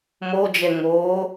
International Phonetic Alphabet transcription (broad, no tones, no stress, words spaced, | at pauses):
mod͡ʒɛ ŋoː